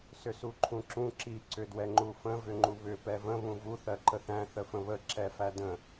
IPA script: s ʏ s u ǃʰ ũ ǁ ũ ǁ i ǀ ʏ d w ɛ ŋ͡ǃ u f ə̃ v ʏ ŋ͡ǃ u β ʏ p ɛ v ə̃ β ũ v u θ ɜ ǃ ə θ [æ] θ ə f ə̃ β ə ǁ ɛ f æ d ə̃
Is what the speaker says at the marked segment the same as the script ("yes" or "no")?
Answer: no